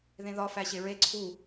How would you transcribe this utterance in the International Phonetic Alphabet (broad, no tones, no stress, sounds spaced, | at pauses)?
ð ẽ ð ɒ f æ ɕ e ɹ e ǀʰ u